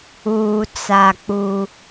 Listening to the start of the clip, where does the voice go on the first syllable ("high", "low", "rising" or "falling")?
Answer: low